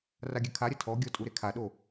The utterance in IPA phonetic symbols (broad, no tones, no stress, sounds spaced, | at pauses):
r a ɡʲ ɘ kʰ a ɾʲ ɐ tʰ ɔ ɡʲ ɔ tʼ u ɾ e kʰ a ɗ o